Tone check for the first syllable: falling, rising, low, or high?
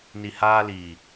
low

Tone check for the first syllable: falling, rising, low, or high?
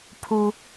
low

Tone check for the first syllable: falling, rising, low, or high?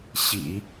low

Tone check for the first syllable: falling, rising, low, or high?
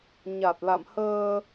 low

